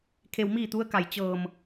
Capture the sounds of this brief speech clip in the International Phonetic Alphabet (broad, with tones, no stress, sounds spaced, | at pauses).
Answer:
kʰ e˧ w m iː˥˨ t̪ u˧˥ ə̯ k a˧˩ j t͡ɕ ɤː˧˩ m